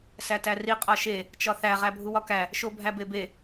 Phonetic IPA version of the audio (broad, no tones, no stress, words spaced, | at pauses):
sætæri qʼɒʃe | t͡ʃɒθæ ʁæbʱuwɒkæ | ʃobʱæbebe